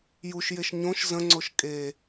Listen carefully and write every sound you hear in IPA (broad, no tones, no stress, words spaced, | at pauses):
juʃjeʃ ɲõʃ zə̃ŋ͡ǀoʃ kʼe